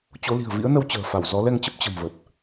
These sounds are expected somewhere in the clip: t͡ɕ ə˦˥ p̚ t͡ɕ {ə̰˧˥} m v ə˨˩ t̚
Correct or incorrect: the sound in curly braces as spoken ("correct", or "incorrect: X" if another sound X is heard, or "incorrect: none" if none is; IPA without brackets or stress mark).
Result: incorrect: ə̤˨˩